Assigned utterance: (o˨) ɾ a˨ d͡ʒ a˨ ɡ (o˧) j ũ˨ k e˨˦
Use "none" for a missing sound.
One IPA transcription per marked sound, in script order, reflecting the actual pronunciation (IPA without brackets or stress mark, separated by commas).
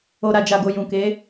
o˨, o˨